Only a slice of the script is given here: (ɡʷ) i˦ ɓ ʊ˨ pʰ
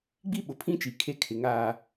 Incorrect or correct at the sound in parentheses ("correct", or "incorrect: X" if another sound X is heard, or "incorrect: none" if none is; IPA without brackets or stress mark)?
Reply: incorrect: ɡ͡b